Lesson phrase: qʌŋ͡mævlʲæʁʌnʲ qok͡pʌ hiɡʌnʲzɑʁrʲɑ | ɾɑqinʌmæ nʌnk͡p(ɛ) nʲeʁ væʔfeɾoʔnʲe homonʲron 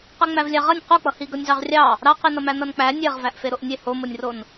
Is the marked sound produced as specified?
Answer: no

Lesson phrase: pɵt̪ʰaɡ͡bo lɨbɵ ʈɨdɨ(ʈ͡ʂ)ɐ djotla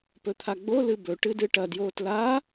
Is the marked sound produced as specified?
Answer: no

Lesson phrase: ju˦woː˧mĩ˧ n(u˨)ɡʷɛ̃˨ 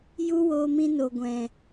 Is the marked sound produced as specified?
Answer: no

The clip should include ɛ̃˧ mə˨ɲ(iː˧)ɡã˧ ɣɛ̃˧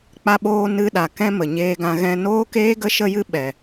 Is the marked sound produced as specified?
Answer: no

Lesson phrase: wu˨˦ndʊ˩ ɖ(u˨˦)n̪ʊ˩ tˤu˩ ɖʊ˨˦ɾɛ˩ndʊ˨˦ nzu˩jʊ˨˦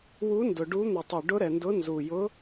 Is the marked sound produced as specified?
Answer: yes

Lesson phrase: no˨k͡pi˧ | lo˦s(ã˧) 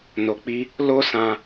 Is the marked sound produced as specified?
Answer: yes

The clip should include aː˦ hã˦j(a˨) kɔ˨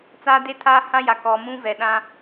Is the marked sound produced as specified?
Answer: yes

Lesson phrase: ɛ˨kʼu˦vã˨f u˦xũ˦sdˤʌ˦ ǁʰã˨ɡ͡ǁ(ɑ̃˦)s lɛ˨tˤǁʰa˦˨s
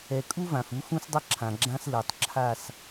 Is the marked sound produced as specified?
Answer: no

